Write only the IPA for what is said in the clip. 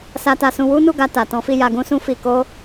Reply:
s a˧ t a˧ s ũ˧ w u˦ n u˦˨ ɡ a˧ t a˨ t ɔ̃˨˦ f i˦˨ j a˧ ɡ ũ˦ s ũ˦ f i˧ k o˦

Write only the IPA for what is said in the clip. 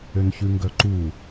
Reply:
ø n ç ʉ ŋ ɡ œ ǃ u

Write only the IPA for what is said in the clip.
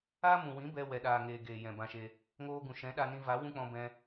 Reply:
aː˦ m ũ˨ w ĩ˨˦ b ɛ˧ w ɛ˨ ɗ aː˨ ŋ eː˨ ɡ eː˨ j ɛ̃˨ b ã˧ ʃ e˧ | ŋ oː˧ ɡ ũ˨ ʃ ɛ̃˨˦ ɗ a˧ n ĩ˧ v a˨˦ w ũ˦ k͡p ɔ̃˧ b ɛ̃˧

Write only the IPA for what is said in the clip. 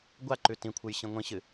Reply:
ɡʷ a ǃ ʉ t ĩ kʷʰ ɨ j ɕ ĩ ŋʷ ĩ ɕ ɨ

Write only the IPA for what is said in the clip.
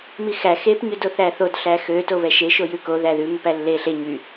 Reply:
m i x æ x e p ɲ ʉ d o θ æ θ o d ɬ æ x ø t o β ɛ ʃ e ʃ o j ʉ k o ð æ ð ʉ m ø p æ lː e ɬ e ɲ y

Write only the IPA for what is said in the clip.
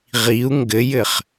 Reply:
ʁ i u̯ ŋ ɡ ɘ j ɘ χ

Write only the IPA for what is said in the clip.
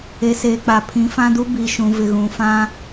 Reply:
e˨ s eː˨ k͡p a˨ pʰ ĩ˨˦ f ã˦ d u˦ b i˨ ʃ ũ˨ v ɪ˨ ɣ ũ˨ f ã˦

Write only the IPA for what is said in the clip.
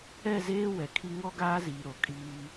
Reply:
ɛ˦˨ z eː˦ w ɛ˨ kʰ i˦ ŋ ɔ˦ ɡ aː˦ z iː˨ ɾ o˨ kʼ iː˦

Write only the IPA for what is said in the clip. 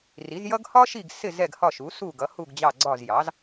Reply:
r i˩˥ z j ʌ˥ ɡ h ɒ˥ ʃ i˦˨ ɡ s ɪ˦˨ z ɛ˦˨ ɡ h ɒ˦˨ ʃ u˩˥ s u˦˨ ɡ ʌ˩˥ h u˦˨ ɡ d͡ʑ ɑ˦˨ ɡ͡ǀ ɒ˦˨ z j ɑ˩˥ z

